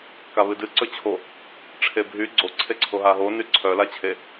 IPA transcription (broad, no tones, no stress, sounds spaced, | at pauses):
k a β ɨ d ɨ ǀ ɵ t͡ɕʰ o | ʈ͡ʂʰ e bʱ y ɡ͡ǀ o ǀʰ e ǀʰ o ɦ a ɦ o n y ǀʰ œ l a t͡ɕʰ e